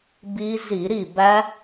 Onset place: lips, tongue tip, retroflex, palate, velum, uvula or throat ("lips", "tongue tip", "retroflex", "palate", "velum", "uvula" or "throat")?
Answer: lips